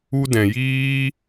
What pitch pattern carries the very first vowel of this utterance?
high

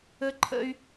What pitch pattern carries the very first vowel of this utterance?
high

